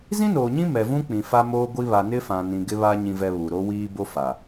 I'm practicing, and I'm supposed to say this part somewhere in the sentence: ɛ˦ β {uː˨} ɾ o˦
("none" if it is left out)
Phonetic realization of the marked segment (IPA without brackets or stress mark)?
u˨